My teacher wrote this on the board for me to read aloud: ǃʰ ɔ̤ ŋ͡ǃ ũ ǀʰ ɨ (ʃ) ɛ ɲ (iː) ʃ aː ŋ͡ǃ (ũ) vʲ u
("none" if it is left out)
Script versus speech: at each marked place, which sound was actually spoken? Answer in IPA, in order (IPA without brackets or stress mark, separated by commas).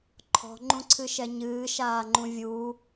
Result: ʃ, ɨː, ũ